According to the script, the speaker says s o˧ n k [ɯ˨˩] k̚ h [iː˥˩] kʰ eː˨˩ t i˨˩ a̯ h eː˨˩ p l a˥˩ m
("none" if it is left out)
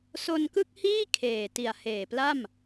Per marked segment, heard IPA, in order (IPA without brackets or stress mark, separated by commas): ɯ˥˩, iː˥˩